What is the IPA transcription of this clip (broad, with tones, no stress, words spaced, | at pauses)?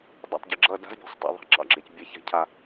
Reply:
dˤa̰˨tˤɟɪ˨ ɡ͡ǁʌ˦˨ da̤˦zbʲa̤˨sˤtˤɑ̰˨ ðˤa̤˧ǁɑ̰˦˨ɡ͡ǁe˨c bʲɛ˦˨ça̤˦cʰa˧